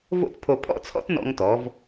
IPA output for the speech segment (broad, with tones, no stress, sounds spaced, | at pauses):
v o̰˥ t pʰ o˧ pʰ ɔ̰˥ t͡sʰ ɔ̰˥ t n ɔ̰˧ ŋ t ɔ˩˧ v